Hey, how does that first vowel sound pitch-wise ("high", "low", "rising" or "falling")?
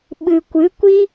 low